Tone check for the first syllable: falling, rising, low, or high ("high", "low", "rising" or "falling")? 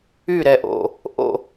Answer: falling